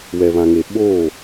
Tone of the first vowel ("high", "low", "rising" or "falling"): low